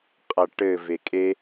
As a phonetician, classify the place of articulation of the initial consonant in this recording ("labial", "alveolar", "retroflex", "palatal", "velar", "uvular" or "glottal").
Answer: uvular